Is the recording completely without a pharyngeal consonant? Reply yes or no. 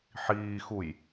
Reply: no